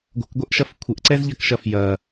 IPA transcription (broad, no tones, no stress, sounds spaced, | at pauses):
ɡʷ ə̤ k ɡʷ ɛ ʔ ʃ ɐ f kʷʰ ə ʔ ǀ ɛ z ʎ ɐ k ʃ ɐ f j ɐ